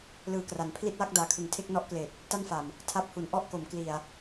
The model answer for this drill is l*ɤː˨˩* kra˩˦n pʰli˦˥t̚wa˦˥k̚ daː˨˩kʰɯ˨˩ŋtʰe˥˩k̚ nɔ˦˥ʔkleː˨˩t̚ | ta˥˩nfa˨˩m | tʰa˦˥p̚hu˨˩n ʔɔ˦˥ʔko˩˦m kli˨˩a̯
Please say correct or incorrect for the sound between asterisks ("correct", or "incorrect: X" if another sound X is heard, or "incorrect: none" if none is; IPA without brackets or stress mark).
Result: incorrect: ɯː˨˩